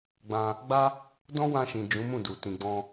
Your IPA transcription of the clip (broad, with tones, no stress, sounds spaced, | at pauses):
ɡ͡b ã˧ | ɡ͡b a˦ | d ɔ̃˦ w ã˧ ʃ ĩ˨ d͡ʒ ũ˨˦ m ũ˦˨ d u˨ t ĩ˨ ɡ͡b ɔ̃˧